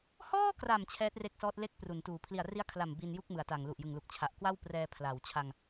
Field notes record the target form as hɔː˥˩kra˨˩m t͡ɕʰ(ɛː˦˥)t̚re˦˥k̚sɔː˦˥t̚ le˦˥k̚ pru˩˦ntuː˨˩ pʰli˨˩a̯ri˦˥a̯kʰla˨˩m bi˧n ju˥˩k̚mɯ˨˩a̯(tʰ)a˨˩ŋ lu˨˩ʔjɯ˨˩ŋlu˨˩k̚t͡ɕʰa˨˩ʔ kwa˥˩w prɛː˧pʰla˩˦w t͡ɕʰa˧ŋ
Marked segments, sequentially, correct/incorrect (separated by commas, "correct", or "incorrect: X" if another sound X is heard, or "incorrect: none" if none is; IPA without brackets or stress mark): correct, incorrect: t